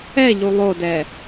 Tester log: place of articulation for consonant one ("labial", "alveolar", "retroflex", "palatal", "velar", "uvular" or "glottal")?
palatal